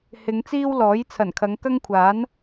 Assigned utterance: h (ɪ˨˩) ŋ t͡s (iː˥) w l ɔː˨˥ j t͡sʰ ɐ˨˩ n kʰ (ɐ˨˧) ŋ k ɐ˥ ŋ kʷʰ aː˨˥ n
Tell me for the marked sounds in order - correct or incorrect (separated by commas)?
incorrect, correct, correct